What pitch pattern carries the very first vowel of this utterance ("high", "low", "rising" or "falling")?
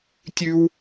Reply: high